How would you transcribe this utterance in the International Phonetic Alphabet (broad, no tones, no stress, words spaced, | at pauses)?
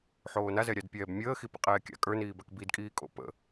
ħoːnazɛ ɾʲadpʲɛːbmʲəːxi pḭqʼɛːkʲa̰ kʼə˞niːbak bidkʼiːkʼo̰ pə̰